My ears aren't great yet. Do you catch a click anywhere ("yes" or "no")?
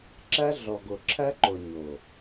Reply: yes